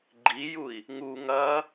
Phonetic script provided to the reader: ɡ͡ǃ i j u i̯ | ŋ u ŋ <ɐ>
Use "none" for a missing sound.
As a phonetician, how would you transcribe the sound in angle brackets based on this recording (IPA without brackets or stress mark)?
ɐ